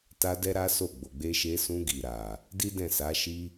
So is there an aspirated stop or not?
no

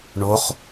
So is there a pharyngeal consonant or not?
no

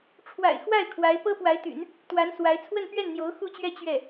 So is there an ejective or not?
no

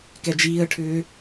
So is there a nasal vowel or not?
no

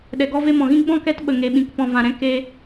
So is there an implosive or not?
yes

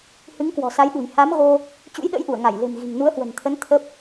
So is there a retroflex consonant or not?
no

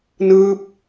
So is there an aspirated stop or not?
no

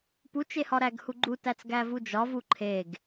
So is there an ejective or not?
no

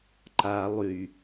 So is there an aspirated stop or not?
no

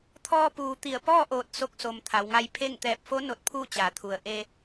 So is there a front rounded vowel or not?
no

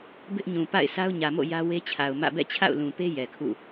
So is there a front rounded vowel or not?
no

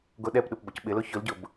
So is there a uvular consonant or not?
no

